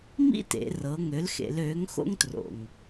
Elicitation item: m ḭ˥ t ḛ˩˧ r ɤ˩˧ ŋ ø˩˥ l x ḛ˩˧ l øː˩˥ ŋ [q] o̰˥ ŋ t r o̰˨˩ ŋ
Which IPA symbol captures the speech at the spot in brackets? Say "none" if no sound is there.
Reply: x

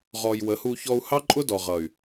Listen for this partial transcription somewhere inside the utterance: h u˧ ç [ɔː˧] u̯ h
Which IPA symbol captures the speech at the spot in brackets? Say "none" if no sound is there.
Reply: ɔ˧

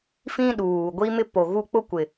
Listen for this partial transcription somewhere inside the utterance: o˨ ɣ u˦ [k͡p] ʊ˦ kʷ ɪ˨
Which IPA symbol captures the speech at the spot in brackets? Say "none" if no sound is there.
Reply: k͡p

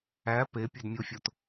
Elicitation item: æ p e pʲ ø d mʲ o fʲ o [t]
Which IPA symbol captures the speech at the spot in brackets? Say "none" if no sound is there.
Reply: t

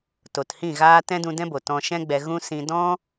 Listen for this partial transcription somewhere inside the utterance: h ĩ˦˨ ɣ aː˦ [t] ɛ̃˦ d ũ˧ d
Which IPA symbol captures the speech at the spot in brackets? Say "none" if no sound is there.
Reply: t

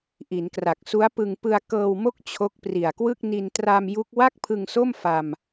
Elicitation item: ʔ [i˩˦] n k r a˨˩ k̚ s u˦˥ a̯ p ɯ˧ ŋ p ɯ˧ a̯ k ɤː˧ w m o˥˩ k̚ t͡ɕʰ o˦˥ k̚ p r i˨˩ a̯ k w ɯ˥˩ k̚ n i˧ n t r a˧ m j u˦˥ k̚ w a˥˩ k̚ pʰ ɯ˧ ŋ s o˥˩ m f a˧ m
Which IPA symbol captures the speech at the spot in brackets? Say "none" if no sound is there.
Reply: i˩˦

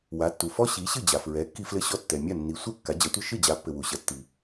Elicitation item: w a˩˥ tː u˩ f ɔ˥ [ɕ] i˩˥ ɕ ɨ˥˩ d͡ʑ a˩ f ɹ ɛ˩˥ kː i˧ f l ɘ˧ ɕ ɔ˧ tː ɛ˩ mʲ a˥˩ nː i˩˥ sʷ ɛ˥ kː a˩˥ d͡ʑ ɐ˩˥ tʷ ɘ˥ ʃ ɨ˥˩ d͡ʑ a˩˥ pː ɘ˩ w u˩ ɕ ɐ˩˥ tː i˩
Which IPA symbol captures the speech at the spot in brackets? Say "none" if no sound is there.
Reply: ɕ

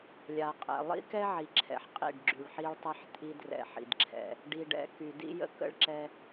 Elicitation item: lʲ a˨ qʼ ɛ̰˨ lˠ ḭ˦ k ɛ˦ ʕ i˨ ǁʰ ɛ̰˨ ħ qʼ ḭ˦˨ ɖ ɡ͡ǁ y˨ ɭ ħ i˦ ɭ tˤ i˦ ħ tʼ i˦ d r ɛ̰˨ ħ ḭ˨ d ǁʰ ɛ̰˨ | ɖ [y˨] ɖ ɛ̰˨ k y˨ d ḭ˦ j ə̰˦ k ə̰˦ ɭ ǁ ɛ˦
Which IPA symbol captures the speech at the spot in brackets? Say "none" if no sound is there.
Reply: i˨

